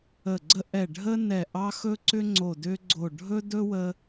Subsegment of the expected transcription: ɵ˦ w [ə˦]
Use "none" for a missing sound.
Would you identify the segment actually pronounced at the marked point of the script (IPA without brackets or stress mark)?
ə˦